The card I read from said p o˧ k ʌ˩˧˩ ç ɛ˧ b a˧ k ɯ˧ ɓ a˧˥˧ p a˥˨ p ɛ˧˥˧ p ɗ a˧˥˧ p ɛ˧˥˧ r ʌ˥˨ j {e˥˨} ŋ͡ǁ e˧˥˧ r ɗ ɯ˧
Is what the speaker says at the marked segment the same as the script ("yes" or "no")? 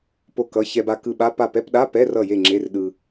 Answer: yes